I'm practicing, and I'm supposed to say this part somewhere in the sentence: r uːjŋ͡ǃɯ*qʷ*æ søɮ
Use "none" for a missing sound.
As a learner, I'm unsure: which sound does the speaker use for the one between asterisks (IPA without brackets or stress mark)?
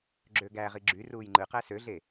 q